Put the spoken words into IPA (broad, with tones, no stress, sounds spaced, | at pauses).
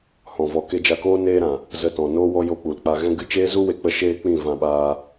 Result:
h ɔ̃˨ v ɔ˨ k e˧ d͡ʒ a˧ k oː˦ n eː˦ ɾ ã˨ | z ə˧ t ɔ̃˨ n oː˦ w ɔ˦ j o˧ k͡p u˨ l k͡p a˧ ɣ ɛ̃˦ ɡ ɨ˧ t͡ʃ eː˦ z u˦ w e˧ k͡p ə˧ ʃ eː˦ k͡p ĩ˦˨ v ã˧ ɓ aː˧